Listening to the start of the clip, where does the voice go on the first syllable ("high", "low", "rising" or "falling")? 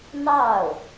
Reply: falling